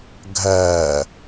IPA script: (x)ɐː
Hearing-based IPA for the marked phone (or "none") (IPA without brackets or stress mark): ɡʱ